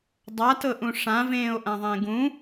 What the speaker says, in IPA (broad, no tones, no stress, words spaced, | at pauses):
dˤatɤʔũ ʂãvẽːo̯ ʔãðˤẽɡũ